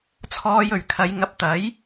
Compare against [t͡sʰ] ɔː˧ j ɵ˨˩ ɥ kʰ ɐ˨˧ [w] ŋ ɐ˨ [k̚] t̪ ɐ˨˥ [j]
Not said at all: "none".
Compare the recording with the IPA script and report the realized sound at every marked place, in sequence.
t͡sʰ, j, p̚, j

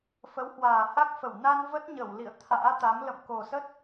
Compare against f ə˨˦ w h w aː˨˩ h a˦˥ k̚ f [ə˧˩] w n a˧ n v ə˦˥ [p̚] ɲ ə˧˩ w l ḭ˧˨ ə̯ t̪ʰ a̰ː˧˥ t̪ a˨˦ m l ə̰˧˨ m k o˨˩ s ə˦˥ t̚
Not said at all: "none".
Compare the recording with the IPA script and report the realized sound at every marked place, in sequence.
ə˧˩, t̚

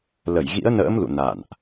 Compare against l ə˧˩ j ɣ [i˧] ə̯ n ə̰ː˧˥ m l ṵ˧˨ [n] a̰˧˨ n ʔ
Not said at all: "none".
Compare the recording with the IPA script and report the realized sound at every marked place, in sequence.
ḭ˧˥, n

